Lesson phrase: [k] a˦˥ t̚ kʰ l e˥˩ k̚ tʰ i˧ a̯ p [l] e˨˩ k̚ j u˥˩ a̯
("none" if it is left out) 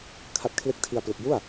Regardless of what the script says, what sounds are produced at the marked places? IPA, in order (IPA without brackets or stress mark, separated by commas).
kʰ, l